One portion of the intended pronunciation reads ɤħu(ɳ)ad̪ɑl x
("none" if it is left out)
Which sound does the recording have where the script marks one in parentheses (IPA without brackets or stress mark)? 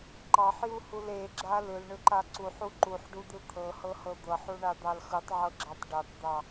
ɳ